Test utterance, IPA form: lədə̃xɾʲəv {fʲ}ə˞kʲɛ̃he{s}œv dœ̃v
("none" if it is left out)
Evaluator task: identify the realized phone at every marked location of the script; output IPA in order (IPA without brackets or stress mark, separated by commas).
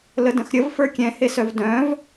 f, s